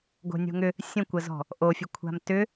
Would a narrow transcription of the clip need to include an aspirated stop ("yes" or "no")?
yes